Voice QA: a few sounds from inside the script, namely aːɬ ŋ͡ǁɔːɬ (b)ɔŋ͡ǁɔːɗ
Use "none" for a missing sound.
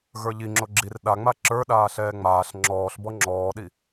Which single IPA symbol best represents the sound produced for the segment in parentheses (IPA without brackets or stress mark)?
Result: b